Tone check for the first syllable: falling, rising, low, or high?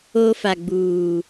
high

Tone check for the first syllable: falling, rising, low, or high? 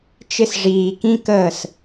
high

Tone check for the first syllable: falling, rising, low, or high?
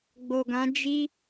low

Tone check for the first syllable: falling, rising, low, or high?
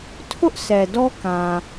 high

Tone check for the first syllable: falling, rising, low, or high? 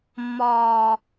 high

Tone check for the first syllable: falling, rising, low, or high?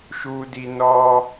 high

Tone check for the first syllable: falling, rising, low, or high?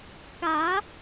rising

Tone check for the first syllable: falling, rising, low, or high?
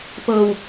low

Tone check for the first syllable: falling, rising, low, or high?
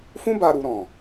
high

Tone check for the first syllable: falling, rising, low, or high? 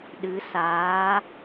rising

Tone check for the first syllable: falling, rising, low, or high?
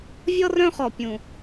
high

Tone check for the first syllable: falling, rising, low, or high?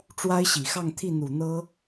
high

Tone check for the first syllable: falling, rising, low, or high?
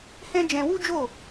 high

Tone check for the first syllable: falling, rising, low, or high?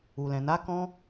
low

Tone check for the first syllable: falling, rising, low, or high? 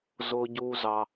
low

